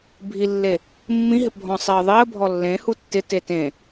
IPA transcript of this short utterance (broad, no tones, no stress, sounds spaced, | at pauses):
bʱ i lː e | mː ĩ ɦ ɪ p bʱ ɔ̃ sˤ i ə̯ ðˤ i ə̯ bʱ ɔ lː ẽ h u tː ɪ t e t ẽ